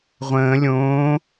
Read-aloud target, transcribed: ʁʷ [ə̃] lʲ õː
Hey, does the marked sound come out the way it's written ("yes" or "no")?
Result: no